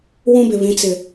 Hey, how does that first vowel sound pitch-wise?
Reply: high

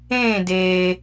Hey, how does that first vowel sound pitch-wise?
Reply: falling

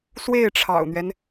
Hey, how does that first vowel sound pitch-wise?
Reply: falling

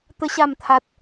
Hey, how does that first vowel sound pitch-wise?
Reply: high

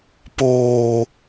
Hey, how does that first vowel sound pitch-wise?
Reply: low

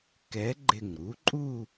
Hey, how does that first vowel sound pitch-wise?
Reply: rising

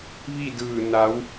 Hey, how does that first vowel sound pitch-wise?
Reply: falling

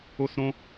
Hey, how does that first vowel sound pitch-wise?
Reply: high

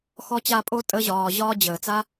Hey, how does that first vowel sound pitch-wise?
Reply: high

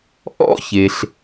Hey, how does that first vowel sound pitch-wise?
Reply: high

